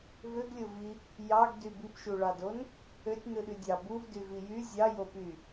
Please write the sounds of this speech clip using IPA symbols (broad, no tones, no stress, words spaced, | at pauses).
vøɡlʲovi | jɑɡdy bipʃuɭɑdon | øtʲnɯɗy dʲɑ buvdyvi jy zʲɑjopy